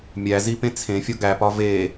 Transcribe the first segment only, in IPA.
mʲ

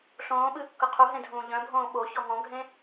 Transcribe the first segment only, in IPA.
ɬ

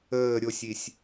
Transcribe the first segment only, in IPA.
əː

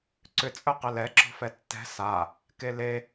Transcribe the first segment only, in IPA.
ǀ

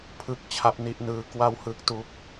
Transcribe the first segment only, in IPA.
pʰ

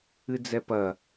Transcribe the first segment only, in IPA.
ɨ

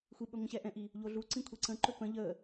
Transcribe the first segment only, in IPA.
xʷ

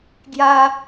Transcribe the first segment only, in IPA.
ɡ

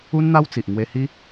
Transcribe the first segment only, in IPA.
u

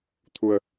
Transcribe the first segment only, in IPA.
t̪ʰ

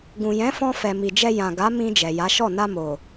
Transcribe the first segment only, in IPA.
ɡ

